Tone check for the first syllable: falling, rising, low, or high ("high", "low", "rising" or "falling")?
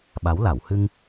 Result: rising